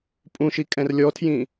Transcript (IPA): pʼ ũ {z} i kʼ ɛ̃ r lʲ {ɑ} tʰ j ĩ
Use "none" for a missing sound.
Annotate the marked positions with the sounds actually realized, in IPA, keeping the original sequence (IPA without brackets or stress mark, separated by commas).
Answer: ʃ, ɔ